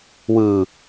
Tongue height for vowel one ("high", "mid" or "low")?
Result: high